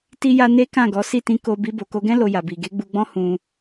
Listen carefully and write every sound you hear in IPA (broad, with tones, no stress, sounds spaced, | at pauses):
t i˦ j a˦ n e˦ k ã˦˨ ɡ ɔ˨˦ s i˦˨ t ĩ˧ k o˧ b i˧ b o˨ k o˧ ɡ ɛ̃˦ l o˧ j a˨ b i˨ ɡ e˨˦ ɡ͡b u˧ ɡ͡b ɔ̃˦ h ũ˧